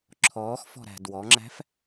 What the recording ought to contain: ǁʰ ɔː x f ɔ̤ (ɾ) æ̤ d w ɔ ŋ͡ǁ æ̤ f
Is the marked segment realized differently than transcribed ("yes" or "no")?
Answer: no